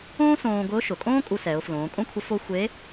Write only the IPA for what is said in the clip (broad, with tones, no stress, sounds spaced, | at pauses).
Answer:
õː˥ s õː˧ ɡ ʊː˧˥ ʃ ʊ˩ kʼ õː˥ kʼ u˧ s ɛ˩˧ ʊ̯ f l õː˩˧ kʼ õ˥ kʷʰ ə˧˥ f o˥ xʷ e˧˥